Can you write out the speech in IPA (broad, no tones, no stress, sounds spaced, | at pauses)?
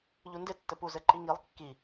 ʎ u n d ɪ tː ɘ p u z ɘ ǃ i ŋ i lˠ kː i